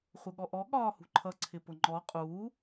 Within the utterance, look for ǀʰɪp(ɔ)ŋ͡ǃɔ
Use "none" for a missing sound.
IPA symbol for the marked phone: ʊ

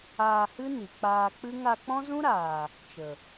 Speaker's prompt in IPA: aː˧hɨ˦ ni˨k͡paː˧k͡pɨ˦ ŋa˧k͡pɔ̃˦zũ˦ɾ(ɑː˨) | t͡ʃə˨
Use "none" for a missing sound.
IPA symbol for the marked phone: aː˨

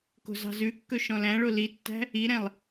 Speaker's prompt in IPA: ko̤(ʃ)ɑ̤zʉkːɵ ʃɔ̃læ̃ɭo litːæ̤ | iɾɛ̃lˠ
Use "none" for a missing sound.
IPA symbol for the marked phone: z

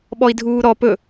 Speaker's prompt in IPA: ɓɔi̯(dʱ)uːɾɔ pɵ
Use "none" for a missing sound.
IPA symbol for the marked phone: dʱ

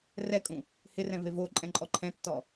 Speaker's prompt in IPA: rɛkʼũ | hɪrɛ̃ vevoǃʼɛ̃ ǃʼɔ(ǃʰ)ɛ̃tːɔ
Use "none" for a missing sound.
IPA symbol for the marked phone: ǃʰ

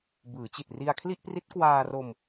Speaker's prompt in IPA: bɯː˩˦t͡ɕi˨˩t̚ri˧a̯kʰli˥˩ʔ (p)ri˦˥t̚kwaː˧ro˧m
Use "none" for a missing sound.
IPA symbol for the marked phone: p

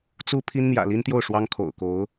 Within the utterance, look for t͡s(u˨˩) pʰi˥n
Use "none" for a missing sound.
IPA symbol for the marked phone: u˥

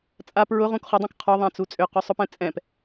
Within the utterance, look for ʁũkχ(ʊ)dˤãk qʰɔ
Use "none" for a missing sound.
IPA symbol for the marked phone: ʊ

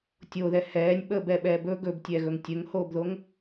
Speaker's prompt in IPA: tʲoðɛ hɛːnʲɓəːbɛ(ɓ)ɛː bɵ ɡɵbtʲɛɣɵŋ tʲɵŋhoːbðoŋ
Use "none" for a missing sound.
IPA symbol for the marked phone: ɓ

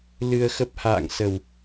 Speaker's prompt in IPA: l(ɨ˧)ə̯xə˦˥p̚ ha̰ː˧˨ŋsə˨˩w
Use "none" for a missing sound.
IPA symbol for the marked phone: ɨ˧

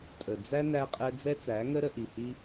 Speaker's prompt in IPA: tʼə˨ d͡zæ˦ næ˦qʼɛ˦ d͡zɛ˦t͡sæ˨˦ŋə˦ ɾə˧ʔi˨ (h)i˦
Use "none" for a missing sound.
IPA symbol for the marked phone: h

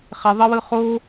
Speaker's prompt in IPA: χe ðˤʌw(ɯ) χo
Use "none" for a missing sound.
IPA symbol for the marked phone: ɯ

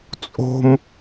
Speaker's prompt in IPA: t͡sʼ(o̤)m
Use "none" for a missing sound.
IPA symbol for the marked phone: o̤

